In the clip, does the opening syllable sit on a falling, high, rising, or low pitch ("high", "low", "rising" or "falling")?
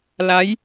rising